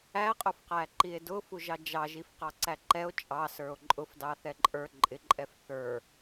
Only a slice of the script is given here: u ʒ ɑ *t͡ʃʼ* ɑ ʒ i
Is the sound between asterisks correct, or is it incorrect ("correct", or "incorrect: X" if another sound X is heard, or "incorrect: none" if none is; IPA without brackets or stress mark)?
incorrect: d͡ʒ